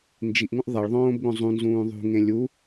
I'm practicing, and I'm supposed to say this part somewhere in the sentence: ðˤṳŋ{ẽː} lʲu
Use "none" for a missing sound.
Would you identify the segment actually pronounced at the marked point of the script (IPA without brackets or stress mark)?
ẽ